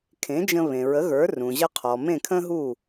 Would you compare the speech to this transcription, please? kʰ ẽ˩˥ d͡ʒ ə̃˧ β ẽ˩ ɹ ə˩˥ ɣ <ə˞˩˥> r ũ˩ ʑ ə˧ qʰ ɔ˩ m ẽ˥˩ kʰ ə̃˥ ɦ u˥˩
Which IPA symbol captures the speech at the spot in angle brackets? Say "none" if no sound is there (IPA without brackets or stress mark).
ə˞˩˥